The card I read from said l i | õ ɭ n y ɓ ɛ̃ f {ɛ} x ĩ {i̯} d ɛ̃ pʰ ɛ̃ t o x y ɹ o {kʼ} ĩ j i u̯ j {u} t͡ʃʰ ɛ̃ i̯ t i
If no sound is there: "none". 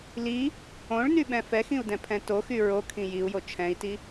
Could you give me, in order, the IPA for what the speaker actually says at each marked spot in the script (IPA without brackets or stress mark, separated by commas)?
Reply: ɛ, u̯, kʰ, o